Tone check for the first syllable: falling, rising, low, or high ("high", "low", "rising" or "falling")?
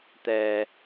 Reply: low